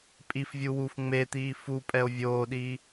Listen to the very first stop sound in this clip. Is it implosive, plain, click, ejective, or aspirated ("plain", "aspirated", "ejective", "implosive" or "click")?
ejective